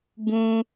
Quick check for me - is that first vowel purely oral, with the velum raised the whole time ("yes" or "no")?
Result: no